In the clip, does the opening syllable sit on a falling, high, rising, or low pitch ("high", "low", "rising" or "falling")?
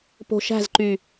low